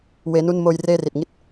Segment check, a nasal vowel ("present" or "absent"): absent